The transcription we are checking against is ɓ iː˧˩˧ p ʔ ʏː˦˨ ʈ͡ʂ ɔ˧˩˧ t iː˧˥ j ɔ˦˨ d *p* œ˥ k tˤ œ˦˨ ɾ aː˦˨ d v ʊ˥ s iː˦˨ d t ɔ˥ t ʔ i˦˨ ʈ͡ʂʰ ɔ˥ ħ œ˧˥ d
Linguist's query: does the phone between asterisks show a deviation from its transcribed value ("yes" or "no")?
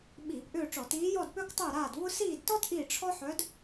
no